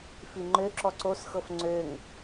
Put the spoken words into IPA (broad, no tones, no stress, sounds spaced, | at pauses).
f i ŋ͡ǃ ø ǁ ɔ ǀ o s x ɤ f ŋ͡ǀ ø ŋ